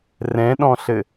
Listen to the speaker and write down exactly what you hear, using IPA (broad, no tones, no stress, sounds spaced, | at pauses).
r ɛ̃ ɗ ɔ̃ ɬ ɘ